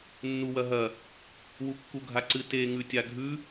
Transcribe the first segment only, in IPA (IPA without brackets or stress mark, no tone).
nː